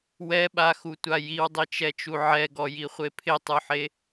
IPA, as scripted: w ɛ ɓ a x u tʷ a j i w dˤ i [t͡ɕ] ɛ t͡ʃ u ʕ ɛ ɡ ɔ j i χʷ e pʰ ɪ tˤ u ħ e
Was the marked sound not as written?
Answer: yes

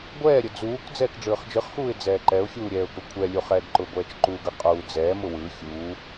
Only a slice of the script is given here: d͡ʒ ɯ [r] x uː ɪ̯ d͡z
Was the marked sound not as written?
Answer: yes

